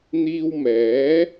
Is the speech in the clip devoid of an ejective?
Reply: yes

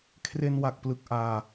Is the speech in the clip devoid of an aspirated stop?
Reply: no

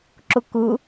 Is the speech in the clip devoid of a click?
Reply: no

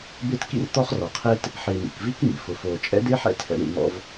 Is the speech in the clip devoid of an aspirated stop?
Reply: no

